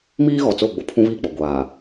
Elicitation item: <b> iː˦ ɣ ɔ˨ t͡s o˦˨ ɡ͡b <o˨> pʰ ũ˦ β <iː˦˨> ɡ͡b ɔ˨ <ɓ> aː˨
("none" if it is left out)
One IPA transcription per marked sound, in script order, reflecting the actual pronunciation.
m, o˨, iː˦˨, ɡʷ

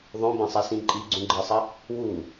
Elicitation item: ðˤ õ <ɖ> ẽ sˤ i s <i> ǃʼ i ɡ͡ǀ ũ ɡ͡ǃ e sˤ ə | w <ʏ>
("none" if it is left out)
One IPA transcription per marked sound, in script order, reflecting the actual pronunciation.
b, ĩ, u

